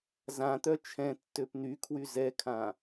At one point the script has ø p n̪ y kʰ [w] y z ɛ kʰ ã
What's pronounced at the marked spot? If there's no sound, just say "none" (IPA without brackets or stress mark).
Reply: w